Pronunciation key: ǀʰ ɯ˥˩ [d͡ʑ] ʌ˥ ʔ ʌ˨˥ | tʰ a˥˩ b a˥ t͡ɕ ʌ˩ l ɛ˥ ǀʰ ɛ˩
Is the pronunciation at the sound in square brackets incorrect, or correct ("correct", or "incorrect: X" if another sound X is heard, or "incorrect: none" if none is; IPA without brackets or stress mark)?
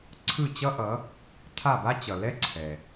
incorrect: t͡ɕ